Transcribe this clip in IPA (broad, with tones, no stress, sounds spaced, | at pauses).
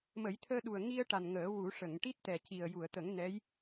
m ə˨˩˦ j t̪ʰ əː˧ ɗ u˨˩ ə̯ ŋ i˧ ə̯ ʈ a˨˩ n ŋ əː˨˩˦ w u˨˩˦ ʂ ə˨˩˨ ŋ ʈ i˦˥ t̚ t̪ ɛ˨˩ c i˨˩ ə̯ j u˨˩˨ ə̯ t̪ ə˨˩˦ ŋ n ɛ˧˥ j